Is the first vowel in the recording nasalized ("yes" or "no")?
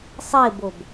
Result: no